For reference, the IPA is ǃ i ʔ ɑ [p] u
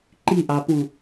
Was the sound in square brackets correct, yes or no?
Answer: yes